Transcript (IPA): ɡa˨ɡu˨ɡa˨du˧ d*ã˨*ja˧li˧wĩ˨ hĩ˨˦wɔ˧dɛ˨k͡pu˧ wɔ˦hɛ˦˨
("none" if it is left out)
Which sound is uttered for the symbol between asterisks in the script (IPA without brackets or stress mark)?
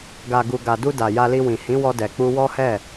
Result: a˨